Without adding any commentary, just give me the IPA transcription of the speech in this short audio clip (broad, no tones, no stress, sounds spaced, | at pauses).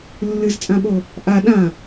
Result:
lː ɨ z t͡sʼ ã ɓ o | ʔ a ɗ ã